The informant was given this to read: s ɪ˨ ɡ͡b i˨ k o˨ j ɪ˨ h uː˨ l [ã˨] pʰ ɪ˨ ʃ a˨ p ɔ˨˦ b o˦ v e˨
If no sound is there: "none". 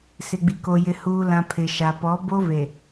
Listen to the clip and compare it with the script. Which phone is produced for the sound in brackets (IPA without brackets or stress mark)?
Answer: ã˨